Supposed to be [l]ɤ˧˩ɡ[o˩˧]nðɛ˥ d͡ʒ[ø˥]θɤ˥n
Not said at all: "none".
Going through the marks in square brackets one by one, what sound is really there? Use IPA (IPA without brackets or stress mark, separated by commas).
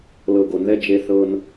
l, o˩˧, e˥